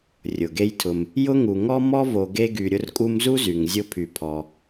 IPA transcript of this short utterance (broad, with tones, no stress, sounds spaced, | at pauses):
rʲ ʊ˩ ɡ e˦ j tʰ ʊ˨ m | j ʊ˥ ŋ u˨ ŋ ɔ˦ m ɔ˦ v o˨ ɡ e˦ ɡ y˨ ɾʲ ʊ˦ r kʼ u˦ m z u˥ z y˨ ŋ zʲ ʊ˦ pʰ y˨ pʰ ɔ˨